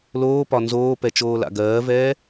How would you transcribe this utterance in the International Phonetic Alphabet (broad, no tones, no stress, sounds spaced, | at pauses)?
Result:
l oː p ɒ n z oː p ɛ t͡ʃ oː l a̰ ɡ ɜː v ɛː